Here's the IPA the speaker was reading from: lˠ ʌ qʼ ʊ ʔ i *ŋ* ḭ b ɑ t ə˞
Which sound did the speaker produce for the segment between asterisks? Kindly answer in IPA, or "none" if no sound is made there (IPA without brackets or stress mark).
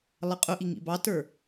ŋ